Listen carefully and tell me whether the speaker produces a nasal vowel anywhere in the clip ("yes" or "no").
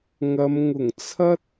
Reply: no